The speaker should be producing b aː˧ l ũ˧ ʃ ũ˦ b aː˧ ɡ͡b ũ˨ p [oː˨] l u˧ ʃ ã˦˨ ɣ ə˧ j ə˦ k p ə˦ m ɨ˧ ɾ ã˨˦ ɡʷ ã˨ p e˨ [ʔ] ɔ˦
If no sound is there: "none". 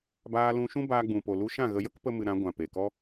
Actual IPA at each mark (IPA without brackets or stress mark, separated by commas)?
o˨, k